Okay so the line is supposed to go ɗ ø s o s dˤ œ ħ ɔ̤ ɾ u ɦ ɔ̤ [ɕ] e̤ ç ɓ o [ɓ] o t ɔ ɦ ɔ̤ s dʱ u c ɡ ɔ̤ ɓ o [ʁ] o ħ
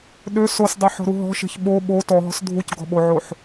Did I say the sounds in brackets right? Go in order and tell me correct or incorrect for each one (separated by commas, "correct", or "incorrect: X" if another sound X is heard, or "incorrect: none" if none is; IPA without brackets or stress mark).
incorrect: ʃ, correct, incorrect: ʕ